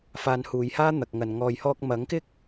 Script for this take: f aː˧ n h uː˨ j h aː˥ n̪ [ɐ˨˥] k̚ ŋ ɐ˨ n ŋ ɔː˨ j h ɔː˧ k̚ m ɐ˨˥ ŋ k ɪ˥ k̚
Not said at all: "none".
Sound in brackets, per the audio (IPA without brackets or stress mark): ɐ˨